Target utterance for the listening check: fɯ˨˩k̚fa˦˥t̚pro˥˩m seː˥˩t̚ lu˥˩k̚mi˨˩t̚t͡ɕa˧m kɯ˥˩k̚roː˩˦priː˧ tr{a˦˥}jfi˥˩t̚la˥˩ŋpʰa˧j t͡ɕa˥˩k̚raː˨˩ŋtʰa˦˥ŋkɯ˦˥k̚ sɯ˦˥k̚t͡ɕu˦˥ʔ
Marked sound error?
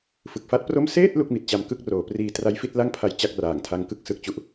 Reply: no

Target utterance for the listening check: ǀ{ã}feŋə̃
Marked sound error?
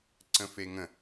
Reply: yes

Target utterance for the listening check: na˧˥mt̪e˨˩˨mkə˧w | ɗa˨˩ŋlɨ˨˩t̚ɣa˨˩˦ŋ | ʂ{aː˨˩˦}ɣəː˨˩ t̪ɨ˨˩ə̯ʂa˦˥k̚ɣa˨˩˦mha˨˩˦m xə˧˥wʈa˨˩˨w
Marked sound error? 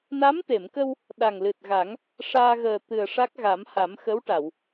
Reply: yes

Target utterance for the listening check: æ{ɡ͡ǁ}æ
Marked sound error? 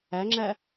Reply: yes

